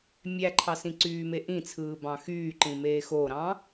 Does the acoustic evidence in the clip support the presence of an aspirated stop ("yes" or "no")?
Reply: yes